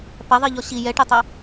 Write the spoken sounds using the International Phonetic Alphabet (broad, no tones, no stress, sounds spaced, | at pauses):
p ɐ ðˤ i ʎ ɔ ɕ i j ɛ ʈ ɛ tˤ ɐ